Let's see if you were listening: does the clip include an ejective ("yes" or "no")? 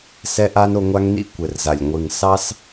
no